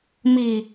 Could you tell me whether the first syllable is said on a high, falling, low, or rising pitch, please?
low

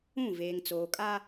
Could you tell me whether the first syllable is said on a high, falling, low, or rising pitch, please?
falling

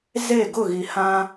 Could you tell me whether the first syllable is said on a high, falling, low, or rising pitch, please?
falling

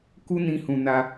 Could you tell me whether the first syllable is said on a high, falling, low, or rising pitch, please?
high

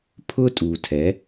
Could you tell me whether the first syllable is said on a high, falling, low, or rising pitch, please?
high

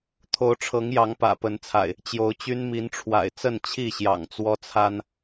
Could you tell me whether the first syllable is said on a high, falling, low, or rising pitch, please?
rising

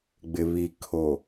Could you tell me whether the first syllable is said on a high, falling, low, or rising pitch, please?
low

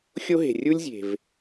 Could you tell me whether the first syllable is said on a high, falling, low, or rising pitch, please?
high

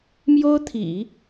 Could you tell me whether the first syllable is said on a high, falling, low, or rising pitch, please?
high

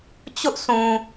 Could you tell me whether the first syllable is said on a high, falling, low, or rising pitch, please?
high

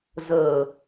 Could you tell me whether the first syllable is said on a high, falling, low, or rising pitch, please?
low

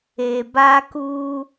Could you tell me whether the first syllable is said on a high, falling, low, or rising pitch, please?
low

